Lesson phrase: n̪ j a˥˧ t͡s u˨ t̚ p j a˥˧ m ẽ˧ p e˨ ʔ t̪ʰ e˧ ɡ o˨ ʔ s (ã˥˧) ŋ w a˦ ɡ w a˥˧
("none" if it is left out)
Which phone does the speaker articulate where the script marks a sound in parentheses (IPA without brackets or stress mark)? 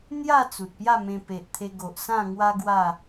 ã˥˧